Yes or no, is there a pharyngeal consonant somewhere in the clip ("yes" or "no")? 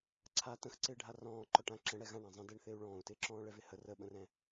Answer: no